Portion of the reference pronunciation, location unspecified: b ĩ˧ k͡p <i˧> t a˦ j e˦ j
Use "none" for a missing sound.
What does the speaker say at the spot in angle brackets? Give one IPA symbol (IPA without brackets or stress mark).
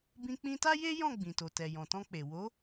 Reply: ĩ˧